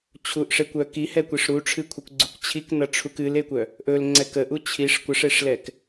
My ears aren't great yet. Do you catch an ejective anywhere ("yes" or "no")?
no